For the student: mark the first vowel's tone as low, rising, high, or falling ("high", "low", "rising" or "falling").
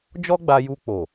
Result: high